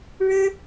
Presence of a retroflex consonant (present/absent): present